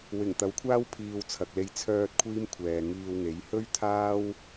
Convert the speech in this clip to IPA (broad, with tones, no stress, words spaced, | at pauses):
wɪ˨˩ŋt̪ɐ˨˥wkʷʰaː˥w pʰiː˧w t͡sʰɐ˨k̚le˧j t͡sʰœː˧t̚ kʷʰiː˥mkʷʰɛː˨ŋiː˧wŋe˨˥j hɵ˥ɥt̪ʰaː˥w